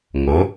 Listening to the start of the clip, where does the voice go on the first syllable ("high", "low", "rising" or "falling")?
rising